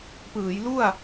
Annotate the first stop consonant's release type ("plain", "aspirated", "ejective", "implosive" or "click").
plain